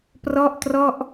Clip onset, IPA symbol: p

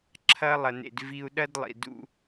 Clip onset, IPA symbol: ǁʰ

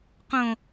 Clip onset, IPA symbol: q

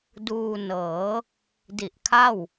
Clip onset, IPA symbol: d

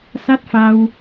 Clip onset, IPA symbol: s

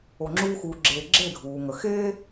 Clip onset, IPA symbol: o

